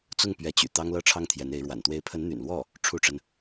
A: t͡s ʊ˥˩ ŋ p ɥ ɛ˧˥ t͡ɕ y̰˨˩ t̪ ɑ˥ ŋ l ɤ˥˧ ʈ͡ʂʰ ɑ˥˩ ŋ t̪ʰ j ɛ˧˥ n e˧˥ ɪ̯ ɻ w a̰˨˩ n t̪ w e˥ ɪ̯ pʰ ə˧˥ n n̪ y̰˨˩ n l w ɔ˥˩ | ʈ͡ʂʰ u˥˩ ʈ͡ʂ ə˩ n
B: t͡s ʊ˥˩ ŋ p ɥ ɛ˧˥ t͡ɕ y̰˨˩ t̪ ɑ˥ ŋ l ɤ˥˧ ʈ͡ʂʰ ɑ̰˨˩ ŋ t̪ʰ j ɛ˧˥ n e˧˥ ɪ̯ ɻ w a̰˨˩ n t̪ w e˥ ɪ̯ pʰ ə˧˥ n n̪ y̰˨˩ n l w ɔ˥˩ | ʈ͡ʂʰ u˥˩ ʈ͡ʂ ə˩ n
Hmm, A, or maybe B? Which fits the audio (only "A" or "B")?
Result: A